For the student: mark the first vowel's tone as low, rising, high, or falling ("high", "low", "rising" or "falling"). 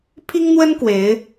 high